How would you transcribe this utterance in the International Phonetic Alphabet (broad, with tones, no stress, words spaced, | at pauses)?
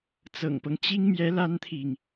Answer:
t͡sɤ̰˨˩ŋpɤ˦ŋt͡ɕi˥ŋmjɛ˧˥ la˥nt̪ʰi˨ŋ